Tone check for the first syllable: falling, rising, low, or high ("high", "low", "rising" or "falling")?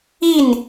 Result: falling